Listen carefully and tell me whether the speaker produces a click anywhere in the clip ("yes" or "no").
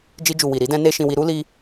no